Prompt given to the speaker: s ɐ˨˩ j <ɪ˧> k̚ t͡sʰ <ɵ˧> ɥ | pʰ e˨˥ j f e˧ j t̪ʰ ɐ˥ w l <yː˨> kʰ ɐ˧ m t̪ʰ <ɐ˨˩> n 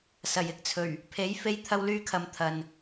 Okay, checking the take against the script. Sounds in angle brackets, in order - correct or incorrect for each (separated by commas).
correct, incorrect, incorrect, incorrect